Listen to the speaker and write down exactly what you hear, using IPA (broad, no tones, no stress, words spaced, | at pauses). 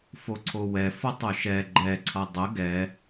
foǀʰowɛ fʌtˤoʃɛ ɡ͡ǃɛ ǀʰʌdˤə ɡɛ